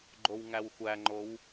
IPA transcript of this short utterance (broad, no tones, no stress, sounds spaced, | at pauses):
ɡ͡ǃ o w ŋ æ w xʷ æ ŋ͡ǃ o w